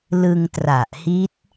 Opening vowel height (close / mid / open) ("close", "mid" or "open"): close